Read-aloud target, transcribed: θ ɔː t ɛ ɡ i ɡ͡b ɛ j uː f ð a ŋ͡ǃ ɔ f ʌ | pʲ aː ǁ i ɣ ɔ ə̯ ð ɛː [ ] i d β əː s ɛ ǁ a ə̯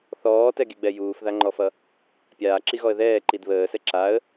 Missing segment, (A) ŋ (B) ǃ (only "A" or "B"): B